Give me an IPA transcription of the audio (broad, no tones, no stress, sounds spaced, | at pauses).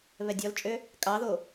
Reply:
β ɛ dʲ ɔ l t͡ʃʼ ø | kʼ ɑ ð o